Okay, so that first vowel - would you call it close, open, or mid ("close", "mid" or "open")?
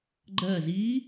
mid